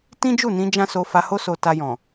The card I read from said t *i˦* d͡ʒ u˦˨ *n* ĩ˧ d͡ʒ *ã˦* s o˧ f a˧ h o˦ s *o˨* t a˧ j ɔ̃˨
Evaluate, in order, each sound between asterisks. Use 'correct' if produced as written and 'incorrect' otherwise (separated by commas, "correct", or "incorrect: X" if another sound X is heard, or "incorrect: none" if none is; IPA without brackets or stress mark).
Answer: incorrect: ĩ˦, correct, correct, incorrect: o˧